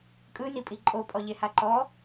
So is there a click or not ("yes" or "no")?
yes